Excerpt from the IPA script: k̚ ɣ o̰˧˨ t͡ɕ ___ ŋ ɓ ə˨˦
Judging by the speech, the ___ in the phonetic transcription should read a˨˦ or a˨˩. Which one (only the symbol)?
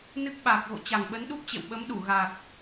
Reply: a˨˩